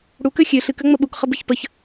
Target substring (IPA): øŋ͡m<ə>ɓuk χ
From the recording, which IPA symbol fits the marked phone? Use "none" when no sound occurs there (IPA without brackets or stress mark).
ə